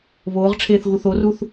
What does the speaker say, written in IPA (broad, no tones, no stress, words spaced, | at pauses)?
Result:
βoːʁʈ͡ʂʰeːθ ɣuθoruθ